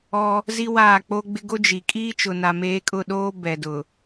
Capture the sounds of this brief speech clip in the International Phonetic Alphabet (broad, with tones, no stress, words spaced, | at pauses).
ɔ˦ | zi˦waː˦˨k͡po˦ɡ͡bɪ˦ ɡo˦d͡ʒi˨ kʼiː˦t͡ʃʊ˨na˨meː˨˦ kʼʊ˦˨ɗoː˦bɛ˨dʊ˨